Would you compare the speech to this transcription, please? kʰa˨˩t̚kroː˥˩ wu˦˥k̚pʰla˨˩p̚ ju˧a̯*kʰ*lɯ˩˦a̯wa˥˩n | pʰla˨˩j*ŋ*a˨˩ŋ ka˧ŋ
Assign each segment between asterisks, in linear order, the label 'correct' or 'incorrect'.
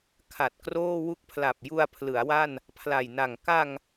incorrect: pʰ, incorrect: n

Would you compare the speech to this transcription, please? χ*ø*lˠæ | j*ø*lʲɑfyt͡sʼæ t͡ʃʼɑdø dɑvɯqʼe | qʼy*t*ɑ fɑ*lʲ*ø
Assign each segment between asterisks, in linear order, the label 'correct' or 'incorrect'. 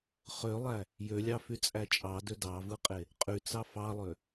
correct, correct, incorrect: t͡s, incorrect: lˠ

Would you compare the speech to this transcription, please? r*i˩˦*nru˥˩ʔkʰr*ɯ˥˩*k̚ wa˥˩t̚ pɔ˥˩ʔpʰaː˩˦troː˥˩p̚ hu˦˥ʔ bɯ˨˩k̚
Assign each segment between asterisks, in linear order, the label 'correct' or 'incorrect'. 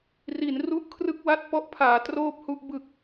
correct, correct

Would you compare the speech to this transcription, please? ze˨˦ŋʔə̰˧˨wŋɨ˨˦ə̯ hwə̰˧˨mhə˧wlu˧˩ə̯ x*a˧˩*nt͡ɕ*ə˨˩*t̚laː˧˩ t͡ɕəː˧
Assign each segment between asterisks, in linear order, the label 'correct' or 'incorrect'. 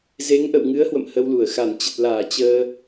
correct, correct

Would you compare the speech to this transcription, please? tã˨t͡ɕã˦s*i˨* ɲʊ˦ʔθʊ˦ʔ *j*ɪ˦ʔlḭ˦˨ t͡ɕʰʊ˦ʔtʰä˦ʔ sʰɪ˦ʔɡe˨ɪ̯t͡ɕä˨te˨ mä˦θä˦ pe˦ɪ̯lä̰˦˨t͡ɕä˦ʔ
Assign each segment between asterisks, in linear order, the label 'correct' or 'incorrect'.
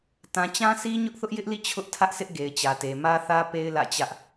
incorrect: i˦, correct

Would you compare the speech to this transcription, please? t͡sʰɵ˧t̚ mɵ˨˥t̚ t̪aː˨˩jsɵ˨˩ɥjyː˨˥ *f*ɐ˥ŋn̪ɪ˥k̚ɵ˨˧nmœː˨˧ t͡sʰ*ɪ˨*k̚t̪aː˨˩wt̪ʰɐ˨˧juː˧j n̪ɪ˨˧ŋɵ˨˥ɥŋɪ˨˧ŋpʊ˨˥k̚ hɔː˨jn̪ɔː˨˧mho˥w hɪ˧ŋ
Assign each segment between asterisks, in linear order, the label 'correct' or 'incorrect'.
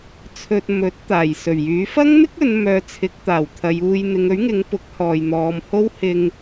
correct, incorrect: ɪ˨˥

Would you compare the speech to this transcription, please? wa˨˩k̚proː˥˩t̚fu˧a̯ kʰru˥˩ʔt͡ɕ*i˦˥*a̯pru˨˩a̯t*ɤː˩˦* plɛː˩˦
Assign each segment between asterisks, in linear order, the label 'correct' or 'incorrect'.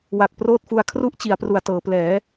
incorrect: i˩˦, correct

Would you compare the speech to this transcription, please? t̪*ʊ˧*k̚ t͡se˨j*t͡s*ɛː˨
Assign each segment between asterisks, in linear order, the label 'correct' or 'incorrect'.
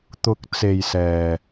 correct, incorrect: s

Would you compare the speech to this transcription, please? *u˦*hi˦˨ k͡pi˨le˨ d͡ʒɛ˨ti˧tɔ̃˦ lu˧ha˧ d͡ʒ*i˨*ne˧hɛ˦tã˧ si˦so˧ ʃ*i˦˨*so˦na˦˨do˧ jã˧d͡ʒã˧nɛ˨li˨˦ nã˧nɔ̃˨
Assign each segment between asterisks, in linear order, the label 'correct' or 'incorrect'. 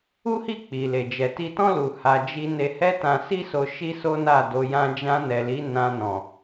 correct, incorrect: i˧, incorrect: i˦

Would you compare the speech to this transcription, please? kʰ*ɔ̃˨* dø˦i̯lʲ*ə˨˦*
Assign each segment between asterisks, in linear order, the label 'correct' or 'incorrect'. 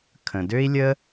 incorrect: ə̃˨, incorrect: ə˦

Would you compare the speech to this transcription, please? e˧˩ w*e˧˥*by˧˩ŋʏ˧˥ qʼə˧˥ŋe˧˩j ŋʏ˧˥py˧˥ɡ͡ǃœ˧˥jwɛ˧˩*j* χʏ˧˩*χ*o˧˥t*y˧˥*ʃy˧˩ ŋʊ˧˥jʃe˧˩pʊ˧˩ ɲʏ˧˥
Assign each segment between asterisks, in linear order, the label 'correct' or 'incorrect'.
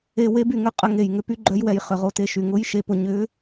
correct, correct, incorrect: ʁ, incorrect: e˧˥

